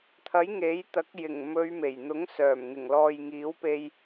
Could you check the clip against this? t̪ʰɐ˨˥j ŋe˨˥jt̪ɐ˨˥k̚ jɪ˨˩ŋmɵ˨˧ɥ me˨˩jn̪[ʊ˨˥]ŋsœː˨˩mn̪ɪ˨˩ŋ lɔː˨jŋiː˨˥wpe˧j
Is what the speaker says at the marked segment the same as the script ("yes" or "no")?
yes